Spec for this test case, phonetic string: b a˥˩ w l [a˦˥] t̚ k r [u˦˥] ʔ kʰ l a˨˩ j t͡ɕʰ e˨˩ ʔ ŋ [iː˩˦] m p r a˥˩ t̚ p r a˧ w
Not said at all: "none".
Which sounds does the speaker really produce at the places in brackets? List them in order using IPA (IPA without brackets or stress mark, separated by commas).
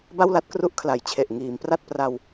a˦˥, u˦˥, iː˩˦